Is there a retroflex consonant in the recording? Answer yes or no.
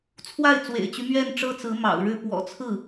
yes